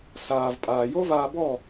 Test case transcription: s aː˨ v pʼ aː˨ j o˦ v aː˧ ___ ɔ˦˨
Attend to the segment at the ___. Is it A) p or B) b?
B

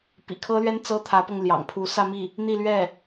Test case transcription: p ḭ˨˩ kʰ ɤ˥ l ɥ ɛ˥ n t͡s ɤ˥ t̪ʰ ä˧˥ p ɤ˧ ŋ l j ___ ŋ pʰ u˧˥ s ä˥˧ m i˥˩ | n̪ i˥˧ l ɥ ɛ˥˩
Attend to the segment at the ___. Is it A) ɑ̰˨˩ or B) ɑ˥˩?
A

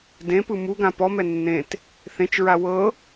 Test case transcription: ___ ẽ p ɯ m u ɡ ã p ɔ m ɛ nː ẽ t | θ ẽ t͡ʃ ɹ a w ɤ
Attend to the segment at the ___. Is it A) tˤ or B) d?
B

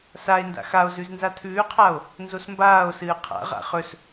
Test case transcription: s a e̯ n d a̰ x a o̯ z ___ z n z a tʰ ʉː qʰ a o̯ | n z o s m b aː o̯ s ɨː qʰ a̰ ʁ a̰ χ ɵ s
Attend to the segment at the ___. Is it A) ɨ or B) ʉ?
B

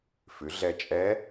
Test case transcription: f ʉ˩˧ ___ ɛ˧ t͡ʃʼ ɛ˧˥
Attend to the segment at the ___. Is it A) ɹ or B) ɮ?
B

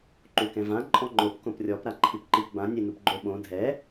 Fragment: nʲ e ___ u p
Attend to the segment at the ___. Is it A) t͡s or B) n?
B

